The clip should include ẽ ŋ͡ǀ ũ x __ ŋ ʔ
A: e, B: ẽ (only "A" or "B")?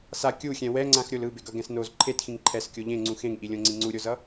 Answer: B